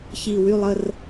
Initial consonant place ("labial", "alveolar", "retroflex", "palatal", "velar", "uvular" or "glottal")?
palatal